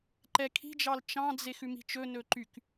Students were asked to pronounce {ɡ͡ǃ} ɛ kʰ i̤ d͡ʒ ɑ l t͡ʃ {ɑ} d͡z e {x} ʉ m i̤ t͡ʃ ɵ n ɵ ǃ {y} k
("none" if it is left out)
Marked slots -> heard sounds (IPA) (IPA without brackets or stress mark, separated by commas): ǃ, ɑ̃, x, y